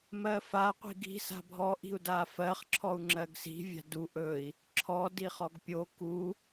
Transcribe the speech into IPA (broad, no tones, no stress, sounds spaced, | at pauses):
m ɜ f a qʷ i̤ ɡ i̤ s a̤ bʱ ɔ ʔ i̤ u̯ d a f ɜ χ ǁʰ ɔ u̯ ŋ͡ǁ ɜ ɡ s i̤ vʲ a̤ d u ʔ ɵ i̯ | ǁʰ ɔ d i χ ɔ ɡ pʲ o k u